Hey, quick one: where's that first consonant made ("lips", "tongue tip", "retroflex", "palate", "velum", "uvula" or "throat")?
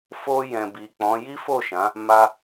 lips